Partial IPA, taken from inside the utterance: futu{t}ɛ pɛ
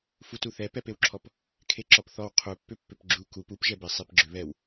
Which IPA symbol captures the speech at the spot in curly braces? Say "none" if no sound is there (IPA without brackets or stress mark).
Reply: θ